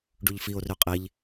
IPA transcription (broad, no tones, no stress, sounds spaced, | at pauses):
ɖ u ʎ f i o̯ r ø qʼ e ʎ